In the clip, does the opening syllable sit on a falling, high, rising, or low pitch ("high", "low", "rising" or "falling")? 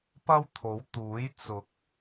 high